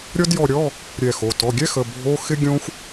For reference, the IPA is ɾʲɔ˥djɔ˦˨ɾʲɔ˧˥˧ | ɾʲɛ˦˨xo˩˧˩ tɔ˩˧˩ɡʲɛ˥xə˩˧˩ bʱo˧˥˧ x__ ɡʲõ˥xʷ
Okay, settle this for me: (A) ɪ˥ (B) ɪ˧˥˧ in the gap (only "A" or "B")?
A